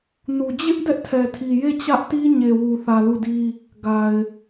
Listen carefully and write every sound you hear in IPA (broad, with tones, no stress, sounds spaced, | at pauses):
n u˨ d͡ʑ ɪ˦ ʔ d ɛ˦ ʔ tʰ ɛ˨ tʰ i˨ j e˦˨ t͡ɕ ä˦ ʔ t i˦ ɲ e˨ w u˨ θ ä˨ l u˦˨ d i˦ | ɡ a˨ ɪ̯